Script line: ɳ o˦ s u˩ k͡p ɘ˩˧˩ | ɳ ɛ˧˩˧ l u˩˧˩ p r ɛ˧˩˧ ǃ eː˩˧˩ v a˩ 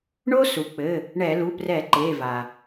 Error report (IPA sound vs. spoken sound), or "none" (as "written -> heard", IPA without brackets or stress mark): none